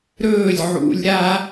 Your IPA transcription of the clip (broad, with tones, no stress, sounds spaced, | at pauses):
ɾ ɵː˥˩ lʲ ʕ ṵ˧ lʲ ɾ a˥